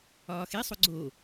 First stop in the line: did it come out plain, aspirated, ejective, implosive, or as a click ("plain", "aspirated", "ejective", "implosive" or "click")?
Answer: click